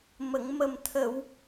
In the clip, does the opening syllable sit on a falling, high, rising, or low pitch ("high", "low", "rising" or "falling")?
low